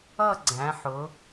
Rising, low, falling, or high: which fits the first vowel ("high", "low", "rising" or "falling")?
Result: falling